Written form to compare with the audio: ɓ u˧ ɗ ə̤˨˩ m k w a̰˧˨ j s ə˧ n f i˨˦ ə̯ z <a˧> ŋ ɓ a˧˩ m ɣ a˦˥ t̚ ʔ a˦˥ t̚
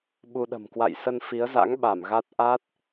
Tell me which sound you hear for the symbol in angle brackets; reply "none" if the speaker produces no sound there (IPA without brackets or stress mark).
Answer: a̰˧˥